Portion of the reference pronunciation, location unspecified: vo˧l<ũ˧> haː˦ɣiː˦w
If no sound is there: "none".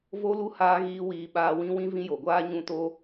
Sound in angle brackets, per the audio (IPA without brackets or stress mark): u˧